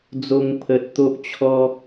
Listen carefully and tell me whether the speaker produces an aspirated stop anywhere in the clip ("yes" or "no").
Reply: yes